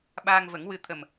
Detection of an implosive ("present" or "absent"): present